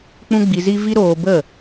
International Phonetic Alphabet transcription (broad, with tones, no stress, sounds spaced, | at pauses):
k͡p ũ˦ ɡ͡b i˧ z i˦ v i˦ ɾ oː˧ b ə˦˨